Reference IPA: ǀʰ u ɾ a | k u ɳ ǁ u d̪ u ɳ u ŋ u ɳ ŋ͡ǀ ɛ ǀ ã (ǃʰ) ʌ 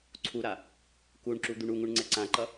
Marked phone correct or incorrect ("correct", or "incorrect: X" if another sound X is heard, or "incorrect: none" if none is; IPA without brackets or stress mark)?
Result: incorrect: ǃ